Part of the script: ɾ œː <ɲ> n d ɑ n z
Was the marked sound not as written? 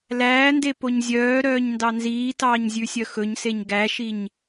no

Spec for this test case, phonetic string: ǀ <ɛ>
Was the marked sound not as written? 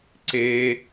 yes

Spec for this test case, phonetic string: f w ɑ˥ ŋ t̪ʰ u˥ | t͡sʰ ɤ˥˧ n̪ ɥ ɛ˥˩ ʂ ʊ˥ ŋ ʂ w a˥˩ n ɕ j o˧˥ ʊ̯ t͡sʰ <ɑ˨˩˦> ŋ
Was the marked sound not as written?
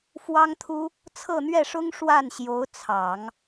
no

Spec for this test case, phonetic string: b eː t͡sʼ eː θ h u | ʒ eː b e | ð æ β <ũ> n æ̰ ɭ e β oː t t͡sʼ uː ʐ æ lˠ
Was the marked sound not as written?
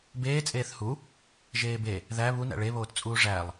yes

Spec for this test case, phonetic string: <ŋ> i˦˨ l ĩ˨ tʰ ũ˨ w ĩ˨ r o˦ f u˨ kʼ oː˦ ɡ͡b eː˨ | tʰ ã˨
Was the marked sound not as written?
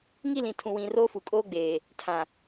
no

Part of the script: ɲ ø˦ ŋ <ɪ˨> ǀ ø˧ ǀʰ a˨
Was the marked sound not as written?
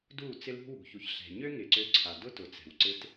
no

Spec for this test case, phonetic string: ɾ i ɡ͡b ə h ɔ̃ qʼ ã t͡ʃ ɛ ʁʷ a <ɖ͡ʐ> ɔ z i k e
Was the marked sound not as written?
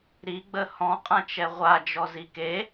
yes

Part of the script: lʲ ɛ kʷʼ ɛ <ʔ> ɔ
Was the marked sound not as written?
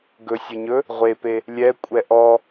no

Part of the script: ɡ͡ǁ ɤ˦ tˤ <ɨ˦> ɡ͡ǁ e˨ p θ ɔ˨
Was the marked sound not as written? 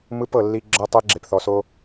yes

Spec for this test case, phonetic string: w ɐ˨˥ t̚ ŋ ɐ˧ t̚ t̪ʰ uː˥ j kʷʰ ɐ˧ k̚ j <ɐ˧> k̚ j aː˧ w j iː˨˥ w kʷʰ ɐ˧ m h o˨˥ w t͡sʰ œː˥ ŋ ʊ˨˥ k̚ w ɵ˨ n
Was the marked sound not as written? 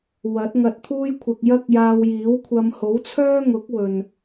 yes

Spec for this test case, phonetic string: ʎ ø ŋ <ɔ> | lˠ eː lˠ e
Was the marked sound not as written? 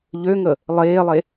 yes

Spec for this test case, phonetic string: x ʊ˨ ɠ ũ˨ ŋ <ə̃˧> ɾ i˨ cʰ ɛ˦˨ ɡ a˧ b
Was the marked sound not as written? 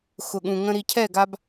no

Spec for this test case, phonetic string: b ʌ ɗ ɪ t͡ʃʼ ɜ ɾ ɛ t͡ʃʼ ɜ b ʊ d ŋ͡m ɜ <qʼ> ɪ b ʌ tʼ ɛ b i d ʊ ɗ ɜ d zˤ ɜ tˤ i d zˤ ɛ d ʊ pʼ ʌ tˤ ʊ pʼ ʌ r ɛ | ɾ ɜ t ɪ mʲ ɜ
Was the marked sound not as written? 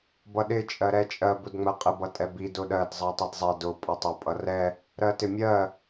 no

